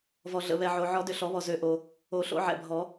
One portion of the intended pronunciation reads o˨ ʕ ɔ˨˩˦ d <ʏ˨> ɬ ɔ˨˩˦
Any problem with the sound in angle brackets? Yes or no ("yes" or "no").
no